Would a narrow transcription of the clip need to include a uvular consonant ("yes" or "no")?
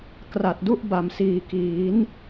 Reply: no